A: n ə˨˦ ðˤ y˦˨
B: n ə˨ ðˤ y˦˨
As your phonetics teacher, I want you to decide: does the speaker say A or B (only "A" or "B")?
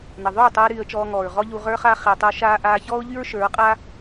B